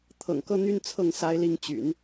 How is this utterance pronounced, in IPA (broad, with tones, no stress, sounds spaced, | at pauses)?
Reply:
t̪ʰ ɤ̰˨˩ ŋ k ɤ˥ n̪ y˥˧ n t͡sʰ ɤ˥˩ ŋ s a˥ ɪ̯ l i˥ ŋ t͡ɕ y̰˨˩˦ n